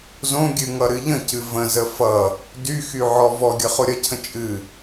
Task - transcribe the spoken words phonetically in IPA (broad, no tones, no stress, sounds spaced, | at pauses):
z õ ɡʲ ɨ ŋ ʌ ɾ ɨ ʎ ə̃ c ɨ v ə̃ z ə f ʌ | d y x y ʕ ɔ v ɔ ɡʲ ʌ χ o ɾʲ ʌ cʰ ə̃ t͡ʃʼ ɨ